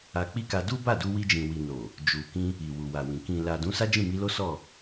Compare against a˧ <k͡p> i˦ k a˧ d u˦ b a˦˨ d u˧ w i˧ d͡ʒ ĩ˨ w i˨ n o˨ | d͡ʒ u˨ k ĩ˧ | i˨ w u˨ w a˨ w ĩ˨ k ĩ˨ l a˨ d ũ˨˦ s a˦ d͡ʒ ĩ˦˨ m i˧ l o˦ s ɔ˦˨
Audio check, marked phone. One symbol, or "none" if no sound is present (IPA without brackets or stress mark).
k͡p